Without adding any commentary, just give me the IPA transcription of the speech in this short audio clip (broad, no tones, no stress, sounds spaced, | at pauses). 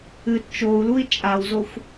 ɨ t t͡ʃ o u̯ l u i̯ t͡ʃʼ a w z o xʷ